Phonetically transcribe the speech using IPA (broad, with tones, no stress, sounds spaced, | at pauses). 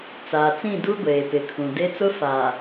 t͡s aː˨ t͡s ĩ˦˨ d u˦ ɡʷ eː˨ p ɪ˨ kʰ ũ˨ d e˦ t͡s ʊ˦ f a˨